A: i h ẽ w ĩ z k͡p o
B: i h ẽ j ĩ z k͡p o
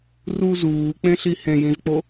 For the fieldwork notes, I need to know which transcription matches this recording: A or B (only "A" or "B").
B